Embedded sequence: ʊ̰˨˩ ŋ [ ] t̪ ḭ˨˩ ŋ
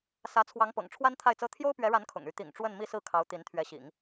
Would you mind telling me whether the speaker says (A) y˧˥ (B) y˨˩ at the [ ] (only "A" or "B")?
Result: A